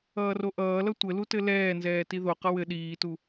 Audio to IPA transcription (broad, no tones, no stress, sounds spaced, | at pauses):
ʌː r o ʔ ʌː l ʌ tʷ ɘ l u t ɘ l ɛː n z ɛː t i ð o q ʌ w ɘ ɗ iː t u